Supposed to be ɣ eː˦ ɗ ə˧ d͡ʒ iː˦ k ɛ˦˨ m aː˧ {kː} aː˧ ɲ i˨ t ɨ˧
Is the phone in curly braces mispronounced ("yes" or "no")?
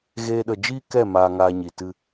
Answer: yes